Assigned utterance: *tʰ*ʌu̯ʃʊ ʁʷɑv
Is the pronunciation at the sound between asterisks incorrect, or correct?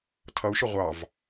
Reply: correct